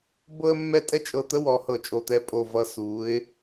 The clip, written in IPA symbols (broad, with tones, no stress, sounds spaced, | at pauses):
b ɤ˥ ə̯ mː ɛ˥˧ tʼ ɛ˥ t͡ʃʼ ɤ˧˩ t̪ ə˥ w ɔ˩˧ h ɤ˧˩ t͡ʃʼ o˧˩ t̪ ɛ˥˧ pʼ o˧˩ v ʌ˧ s u˩˧ ɪ̯